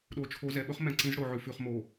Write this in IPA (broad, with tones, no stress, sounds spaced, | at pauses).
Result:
ɗ o˨ t͡ʃʰ o˨˦ z ɛ˨ ɓ ɵ˦ χ m ɛ̃˨ ǀ ĩ˨˦ z ɽ o˨ ʕ ʉ˨ f ʉ˨ χ m o˨